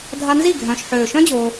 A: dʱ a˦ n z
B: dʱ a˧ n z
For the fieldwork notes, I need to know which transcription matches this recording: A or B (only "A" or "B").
B